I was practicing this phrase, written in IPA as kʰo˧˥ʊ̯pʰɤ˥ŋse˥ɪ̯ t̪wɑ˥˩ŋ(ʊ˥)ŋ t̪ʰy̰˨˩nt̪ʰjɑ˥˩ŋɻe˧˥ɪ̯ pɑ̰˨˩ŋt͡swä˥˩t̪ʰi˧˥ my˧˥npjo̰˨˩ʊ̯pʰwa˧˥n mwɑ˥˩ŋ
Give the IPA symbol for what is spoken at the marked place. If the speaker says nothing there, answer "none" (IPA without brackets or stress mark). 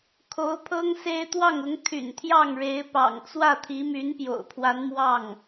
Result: ʊ˧˥